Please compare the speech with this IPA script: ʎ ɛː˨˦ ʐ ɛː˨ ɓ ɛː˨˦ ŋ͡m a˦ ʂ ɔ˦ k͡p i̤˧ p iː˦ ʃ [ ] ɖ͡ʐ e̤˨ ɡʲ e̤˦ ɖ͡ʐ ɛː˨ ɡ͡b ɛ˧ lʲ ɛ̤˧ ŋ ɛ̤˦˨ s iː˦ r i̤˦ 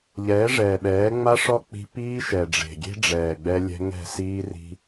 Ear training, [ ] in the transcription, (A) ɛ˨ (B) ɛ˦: A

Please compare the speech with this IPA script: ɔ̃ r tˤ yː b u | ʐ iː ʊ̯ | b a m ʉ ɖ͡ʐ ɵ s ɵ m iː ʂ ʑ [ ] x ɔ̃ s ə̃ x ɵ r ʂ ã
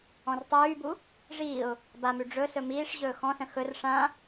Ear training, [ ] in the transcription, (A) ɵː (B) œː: A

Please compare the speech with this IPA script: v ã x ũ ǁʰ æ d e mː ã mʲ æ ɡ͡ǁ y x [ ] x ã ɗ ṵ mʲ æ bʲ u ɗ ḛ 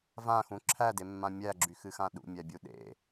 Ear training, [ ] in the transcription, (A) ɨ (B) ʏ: A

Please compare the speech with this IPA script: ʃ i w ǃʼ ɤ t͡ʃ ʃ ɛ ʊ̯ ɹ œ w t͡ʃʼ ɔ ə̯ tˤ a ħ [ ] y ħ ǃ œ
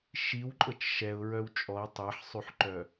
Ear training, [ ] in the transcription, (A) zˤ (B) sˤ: B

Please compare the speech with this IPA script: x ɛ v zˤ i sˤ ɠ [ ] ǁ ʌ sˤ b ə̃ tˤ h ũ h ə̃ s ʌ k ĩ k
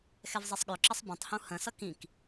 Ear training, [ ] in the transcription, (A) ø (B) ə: A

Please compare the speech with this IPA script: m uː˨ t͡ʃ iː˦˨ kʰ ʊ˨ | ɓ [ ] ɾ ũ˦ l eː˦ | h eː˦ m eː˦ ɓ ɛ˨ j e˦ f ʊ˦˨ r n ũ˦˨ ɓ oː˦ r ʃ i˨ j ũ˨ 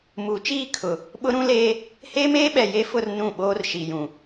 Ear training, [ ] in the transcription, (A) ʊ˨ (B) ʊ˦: B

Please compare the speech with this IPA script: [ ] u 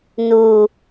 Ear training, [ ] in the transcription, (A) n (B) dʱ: A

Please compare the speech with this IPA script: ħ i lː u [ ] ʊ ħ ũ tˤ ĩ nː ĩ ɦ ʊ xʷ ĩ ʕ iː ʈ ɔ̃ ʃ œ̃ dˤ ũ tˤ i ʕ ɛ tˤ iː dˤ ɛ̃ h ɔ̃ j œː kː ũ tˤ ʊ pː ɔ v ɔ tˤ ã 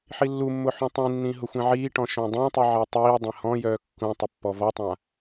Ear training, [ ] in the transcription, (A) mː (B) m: A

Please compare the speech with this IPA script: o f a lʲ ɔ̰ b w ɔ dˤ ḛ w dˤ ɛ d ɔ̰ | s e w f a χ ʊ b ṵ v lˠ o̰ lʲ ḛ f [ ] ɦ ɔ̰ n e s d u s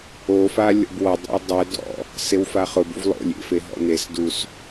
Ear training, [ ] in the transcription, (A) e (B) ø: A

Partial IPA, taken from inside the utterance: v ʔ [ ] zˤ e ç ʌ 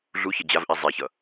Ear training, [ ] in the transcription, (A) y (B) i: B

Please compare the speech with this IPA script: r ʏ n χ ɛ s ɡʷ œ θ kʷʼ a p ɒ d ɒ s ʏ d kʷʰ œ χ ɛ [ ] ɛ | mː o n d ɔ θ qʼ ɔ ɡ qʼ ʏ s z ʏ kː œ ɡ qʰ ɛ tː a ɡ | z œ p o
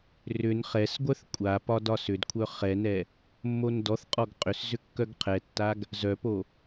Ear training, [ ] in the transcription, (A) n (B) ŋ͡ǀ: A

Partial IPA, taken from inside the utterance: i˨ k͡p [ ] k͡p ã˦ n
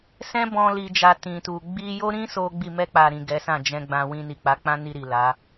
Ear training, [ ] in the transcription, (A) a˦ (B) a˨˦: B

